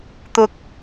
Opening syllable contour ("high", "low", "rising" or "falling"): high